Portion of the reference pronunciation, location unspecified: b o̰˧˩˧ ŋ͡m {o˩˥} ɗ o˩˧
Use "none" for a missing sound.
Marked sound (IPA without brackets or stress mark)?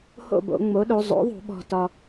o˩˥